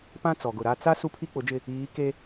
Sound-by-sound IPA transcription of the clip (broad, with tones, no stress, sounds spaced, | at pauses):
p ã˦ t͡s ɔ˨ ɡ ʊ˨ ɾ a˦˨ t͡s a˦ s u˦ pʰ i˦ k͡p ʊ˨˦ d͡ʒ ɪ˦˨ | iː˨˦ k e˦